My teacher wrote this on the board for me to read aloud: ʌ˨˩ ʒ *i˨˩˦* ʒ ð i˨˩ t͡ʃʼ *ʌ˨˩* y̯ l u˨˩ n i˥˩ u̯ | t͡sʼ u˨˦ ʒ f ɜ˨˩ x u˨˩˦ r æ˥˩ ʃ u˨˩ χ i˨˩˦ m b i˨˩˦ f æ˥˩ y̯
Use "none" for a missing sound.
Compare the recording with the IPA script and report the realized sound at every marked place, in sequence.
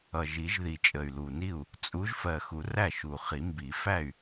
i˨˩˦, ə˨˩

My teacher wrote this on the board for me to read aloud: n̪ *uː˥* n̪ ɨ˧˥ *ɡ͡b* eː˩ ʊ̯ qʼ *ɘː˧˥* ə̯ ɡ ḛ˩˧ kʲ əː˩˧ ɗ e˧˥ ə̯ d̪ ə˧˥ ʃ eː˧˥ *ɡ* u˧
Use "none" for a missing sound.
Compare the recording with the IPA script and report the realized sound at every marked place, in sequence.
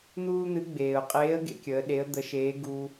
uː˥, ɡ͡b, eː˧˥, ɡ

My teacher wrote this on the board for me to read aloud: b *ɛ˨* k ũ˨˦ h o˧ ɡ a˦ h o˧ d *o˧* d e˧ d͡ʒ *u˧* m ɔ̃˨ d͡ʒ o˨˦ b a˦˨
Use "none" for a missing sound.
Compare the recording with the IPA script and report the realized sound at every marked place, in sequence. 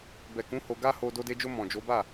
ɛ˨, o˧, o˧

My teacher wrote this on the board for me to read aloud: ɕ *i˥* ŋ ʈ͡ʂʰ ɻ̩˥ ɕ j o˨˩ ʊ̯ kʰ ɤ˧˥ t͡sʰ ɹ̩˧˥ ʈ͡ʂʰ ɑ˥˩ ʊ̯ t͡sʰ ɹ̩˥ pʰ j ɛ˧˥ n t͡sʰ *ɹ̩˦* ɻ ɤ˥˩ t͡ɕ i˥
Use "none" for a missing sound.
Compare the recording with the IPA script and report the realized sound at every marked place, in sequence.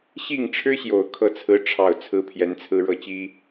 i˥˩, ɹ̩˥

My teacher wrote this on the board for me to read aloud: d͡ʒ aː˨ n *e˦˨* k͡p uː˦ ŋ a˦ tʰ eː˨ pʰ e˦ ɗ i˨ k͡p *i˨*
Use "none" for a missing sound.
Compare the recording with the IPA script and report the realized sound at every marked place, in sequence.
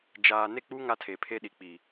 e˦˨, i˨

